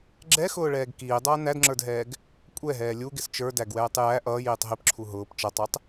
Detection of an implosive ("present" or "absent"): absent